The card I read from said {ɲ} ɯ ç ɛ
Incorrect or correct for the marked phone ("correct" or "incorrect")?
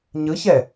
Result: correct